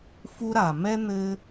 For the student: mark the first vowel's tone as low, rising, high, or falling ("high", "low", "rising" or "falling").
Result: high